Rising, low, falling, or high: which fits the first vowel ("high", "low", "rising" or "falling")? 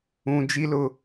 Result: high